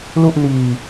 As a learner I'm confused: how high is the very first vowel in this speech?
high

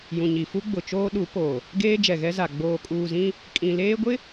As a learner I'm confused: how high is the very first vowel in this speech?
high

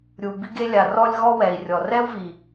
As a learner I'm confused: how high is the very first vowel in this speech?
high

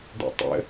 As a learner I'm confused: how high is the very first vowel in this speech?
high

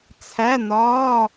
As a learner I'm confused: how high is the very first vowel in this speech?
low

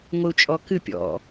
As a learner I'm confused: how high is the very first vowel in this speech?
high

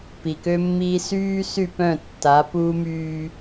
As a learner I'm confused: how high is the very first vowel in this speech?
high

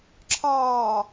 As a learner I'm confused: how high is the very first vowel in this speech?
low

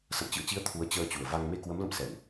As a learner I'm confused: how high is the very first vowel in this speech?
mid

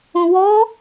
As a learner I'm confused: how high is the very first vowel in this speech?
high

